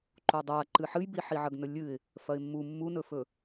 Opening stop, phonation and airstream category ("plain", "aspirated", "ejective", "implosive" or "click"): click